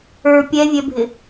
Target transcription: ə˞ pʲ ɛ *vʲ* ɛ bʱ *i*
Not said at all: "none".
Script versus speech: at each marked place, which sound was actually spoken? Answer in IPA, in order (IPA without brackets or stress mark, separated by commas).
vʲ, ɪ